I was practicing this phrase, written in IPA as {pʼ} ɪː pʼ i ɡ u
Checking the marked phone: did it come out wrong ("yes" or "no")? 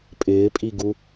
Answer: no